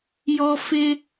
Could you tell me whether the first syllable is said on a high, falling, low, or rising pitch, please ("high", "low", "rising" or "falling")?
high